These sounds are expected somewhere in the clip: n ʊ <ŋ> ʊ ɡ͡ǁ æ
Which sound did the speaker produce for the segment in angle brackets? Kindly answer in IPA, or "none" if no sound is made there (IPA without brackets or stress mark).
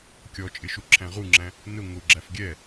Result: ŋ